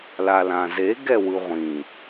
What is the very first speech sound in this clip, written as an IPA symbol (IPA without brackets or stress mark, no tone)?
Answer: l